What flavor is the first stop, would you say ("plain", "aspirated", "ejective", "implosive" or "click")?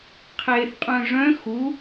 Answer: aspirated